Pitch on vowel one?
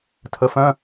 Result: rising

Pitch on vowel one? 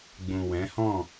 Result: low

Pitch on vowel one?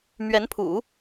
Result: rising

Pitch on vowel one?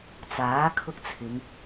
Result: rising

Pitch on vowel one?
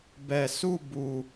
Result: low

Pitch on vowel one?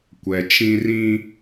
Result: low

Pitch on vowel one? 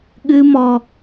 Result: high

